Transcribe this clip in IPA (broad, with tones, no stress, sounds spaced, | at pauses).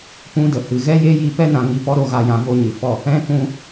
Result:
p ũ˦ d ə˨ h ɨ˨ ɣ ɛ˦ j e˦ j i˧ p ɛ˦ n ã˨ ŋ i˧ p ɔ˦ ɾ o˧ ɣ a˨ j ã˨ v o˧ ɲ ɨ˨ f ɔ˦˨ | ɛ̃˦ k ũ˦